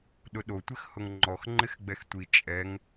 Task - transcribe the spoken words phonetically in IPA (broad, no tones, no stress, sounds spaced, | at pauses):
ɗ ʊ ɗ o tʷ ɪ x h ʊ ŋ ŋ͡ǃ ɔ x ŋ͡ǃ ɪ x ɡ͡b ɛ x tʷ i t͡ʃʼ ɛ ŋ